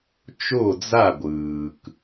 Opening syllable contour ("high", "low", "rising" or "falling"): falling